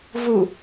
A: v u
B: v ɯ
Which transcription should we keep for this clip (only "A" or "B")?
A